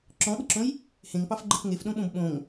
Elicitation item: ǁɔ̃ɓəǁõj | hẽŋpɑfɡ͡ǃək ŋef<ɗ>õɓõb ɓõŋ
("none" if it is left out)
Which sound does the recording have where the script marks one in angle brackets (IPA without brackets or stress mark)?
ɗ